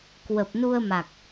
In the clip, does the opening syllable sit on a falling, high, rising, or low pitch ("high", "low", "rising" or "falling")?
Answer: low